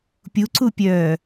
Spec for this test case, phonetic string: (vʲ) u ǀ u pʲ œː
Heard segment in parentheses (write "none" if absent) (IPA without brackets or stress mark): pʲ